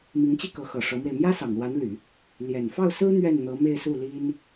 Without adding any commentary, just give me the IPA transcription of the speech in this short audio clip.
m i˧˥ ŋ t͡ɕ i˥˩ k ɤ˧˥ x ɤ˨˩ ʂ ɤ˧˥ m w e˧ ɪ̯ m j ä˥ s ɑ˨˩ ŋ l w a˧˥ n l y˨˩˦ | l j ɛ˨˩ n f ɑ˥˩ ʊ̯ s ɹ̩˥ n̪ ɥ ɛ˥˩ n n̪ ɤ˧˥ m e˥˧ ɪ̯ s u˥˩ l i˥ n

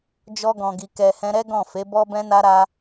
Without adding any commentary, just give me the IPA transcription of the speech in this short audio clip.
d͡ʒ ɔ˧ ɡ ɔ̃˨ ɡ i˨ k ɛ˨ h ɛ̃˧ ɾ ɛ˦ ɡ ɔ̃˦˨ f e˨˦ b ɔ˦ b ɛ̃˦ n a˦ ɾ a˦

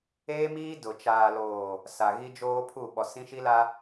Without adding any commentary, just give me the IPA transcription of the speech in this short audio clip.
eː˦ m iː˦ d ʊ˨ t͡ʃ aː˨ l oː˨ | s a˨ ɣ i˦ d͡ʒ oː˦ pʰ u˦˨ ɓ ɔ˨ s ĩ˦ ʃ i˦ l a˦

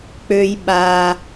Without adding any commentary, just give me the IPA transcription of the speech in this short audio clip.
k͡p ø j ɓ a

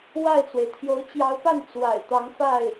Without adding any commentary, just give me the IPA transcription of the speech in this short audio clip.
w a˥˩ ɪ̯ t͡s w e˩ ɪ̯ t̪ʰ j o˧˥ ʊ̯ t͡ɕ j ɑ˧˥ ʊ̯ p a˥˩ n t͡s w a̰˨˩ ɪ̯ t̪ ɑ˧˥ ŋ f a˥˩ ɪ̯

